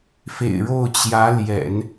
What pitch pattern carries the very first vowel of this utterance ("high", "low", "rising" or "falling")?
low